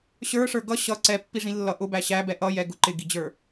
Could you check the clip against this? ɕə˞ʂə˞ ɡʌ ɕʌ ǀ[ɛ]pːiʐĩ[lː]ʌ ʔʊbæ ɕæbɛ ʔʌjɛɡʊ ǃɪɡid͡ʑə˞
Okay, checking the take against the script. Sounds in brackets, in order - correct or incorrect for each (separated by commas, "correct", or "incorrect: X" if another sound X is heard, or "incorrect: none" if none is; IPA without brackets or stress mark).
correct, correct